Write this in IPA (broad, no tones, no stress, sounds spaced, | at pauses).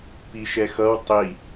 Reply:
p i ʃ ɛ x ʌ w tˤ i